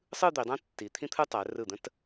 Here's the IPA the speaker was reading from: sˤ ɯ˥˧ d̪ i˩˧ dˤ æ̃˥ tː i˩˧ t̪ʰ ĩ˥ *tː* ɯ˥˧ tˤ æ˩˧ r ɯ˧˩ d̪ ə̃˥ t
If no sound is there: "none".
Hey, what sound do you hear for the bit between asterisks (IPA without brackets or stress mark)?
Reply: t̪ʰ